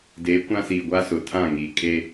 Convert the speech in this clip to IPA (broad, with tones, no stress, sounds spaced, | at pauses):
d eː˨˦ kʷ ã˦ s iː˨ ɡʷ a˦ s ʊ˨ tʰ ã˦˨ ŋ iː˨ kʼ e˦